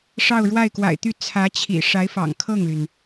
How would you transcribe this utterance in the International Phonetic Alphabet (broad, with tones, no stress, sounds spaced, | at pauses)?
ʂ ɑ˥˧ ʊ̯ ɻ w a˥˩ ɪ̯ k w a̰˨˩ ɪ̯ t̪ y˥˩ t͡sʰ ä˧˥ t͡ɕʰ ḭ˨˩ ʂ a˧˥ ɪ̯ f ɑ̰˨˩ ŋ kʰ ɤ˥˩ ŋ l y˩ n